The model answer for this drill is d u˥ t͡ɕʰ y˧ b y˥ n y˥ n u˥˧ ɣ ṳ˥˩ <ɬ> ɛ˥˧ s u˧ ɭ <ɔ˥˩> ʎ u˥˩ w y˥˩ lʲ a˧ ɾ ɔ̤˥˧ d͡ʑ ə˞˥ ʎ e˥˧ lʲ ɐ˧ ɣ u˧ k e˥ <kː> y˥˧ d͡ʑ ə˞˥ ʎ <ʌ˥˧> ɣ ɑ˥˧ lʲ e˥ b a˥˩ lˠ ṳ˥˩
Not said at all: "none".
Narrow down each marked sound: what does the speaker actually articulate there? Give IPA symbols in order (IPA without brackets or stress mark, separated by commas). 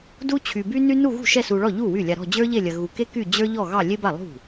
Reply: ʃ, ɔ˥˩, k, ɔ˥˧